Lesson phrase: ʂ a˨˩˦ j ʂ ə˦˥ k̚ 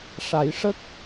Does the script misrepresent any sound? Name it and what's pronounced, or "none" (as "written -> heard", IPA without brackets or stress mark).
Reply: none